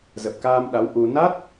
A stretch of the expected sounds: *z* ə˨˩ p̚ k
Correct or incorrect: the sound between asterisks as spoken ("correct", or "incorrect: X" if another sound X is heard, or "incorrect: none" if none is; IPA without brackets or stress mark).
correct